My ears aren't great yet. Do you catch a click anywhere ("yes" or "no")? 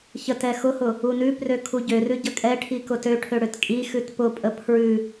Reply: no